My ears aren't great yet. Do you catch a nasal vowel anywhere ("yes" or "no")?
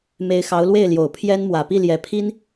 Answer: no